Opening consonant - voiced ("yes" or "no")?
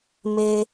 yes